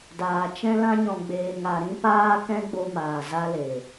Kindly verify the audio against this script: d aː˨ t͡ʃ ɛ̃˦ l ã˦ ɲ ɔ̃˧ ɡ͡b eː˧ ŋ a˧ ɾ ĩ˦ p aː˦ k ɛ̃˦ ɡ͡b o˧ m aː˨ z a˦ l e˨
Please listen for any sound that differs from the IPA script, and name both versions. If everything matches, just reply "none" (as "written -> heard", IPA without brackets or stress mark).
none